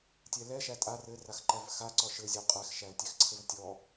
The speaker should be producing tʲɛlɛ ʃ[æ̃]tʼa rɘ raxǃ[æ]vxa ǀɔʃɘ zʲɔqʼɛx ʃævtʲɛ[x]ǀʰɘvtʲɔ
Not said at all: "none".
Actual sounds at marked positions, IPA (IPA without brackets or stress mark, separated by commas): æ, æ, x